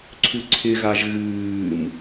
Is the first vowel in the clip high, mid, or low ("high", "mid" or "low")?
high